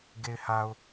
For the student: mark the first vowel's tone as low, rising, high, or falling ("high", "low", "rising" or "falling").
low